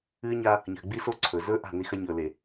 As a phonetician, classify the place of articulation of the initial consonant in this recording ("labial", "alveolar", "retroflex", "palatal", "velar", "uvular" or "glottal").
palatal